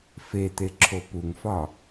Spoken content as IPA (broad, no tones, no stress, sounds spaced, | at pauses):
f e t̪ e ǁʰ o p u ŋ f ɒ